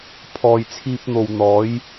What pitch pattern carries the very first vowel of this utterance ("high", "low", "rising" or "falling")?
low